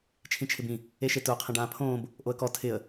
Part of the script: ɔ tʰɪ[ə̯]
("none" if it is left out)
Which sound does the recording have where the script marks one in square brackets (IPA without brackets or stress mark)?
ə̯